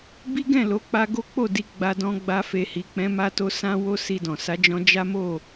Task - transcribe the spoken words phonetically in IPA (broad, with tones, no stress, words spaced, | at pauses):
bi˦ɡɛ̃˦˨ lo˨˦k͡pa˧ ɡo˦k͡po˦˨di˧ ɡ͡ba˧dɔ̃˧ɡ͡ba˧ fe˨hi˨k͡pɛ̃˨˦ ma˧to˧ sã˦wo˦ si˧dɔ̃˨ sa˨˦ d͡ʒɔ̃˧ d͡ʒa˦ mo˦˨